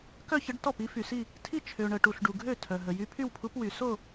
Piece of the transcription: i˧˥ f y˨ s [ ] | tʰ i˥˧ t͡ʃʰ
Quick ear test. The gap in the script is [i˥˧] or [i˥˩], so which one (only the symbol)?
i˥˧